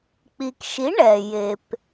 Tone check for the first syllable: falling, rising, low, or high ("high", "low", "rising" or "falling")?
low